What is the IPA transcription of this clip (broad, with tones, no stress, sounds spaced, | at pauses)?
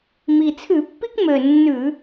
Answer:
m i˨˩ t͡sʰ ʉ˧˩˧ pː i˦ k m ø˨˩ nː ʉ˧˩˧